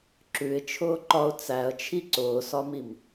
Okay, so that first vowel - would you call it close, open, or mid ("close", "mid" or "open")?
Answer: close